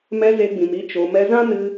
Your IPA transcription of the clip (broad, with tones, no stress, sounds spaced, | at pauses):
m ɛ˧ z e˧ ɡ͡b ĩ˨ m i˧ t͡ʃ o˨ m ɛ˧ z ã˦ n ɨ˧